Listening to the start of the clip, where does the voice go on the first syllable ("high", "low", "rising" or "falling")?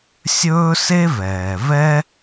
high